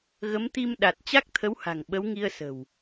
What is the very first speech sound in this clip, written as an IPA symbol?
ɣ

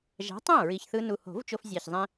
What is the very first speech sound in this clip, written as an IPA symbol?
ʒ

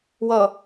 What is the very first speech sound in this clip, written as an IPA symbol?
w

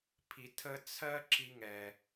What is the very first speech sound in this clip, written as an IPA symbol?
pʰ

